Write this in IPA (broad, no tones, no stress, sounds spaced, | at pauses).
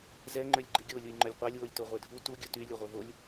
z ɛ ŋ͡ǃ ø lʲ ɡ͡ǃ i ɡʲ o lʲ u j ŋ͡ǃ ɵ lʲ qʷ ɑ lʲ w o lʲ t o ʁʷ ɛ dʱ u t u ɡʲ u t y lʲ ɵ ʁʷ œ v o lʲ